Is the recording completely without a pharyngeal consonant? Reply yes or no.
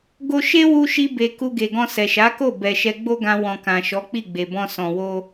yes